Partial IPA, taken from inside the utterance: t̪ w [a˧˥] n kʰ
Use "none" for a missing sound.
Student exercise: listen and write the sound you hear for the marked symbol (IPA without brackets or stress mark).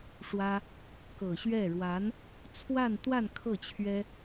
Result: a˥˧